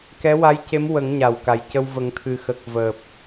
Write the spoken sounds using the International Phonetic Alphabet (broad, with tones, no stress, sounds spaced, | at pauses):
k ɛ˧˥ w a˧˥ j c e˧˥ m w ə˨˩˦ ŋ ɲ a˨˩ w k a˨˩ j c ə˧ w v ə˨˩˦ ŋ t̪ʰ ɨ˨˩ x ə˨˩ k̚ v əː˨˩ p̚